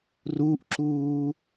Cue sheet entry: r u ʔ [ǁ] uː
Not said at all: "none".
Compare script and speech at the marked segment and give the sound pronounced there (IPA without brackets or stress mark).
ǁ